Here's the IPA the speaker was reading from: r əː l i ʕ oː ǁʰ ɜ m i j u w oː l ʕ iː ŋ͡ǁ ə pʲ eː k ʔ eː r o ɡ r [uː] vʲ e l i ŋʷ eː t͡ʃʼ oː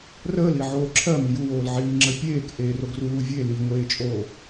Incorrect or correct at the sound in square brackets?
correct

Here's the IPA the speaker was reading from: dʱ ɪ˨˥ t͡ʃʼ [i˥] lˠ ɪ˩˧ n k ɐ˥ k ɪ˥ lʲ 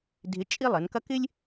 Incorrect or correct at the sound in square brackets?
correct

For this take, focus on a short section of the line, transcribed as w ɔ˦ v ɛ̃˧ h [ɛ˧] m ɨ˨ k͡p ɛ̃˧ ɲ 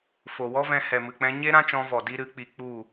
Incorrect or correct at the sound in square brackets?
incorrect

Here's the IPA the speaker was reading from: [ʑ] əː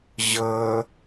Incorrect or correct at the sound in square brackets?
correct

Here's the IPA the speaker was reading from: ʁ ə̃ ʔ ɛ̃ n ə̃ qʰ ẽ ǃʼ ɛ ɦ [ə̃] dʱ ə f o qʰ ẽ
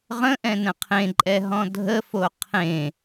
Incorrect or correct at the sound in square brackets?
incorrect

